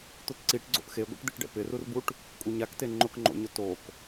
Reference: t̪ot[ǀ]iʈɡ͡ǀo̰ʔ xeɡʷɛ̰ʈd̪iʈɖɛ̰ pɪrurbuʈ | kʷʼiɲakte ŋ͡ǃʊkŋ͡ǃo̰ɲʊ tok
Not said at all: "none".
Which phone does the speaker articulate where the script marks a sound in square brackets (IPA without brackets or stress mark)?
ǀ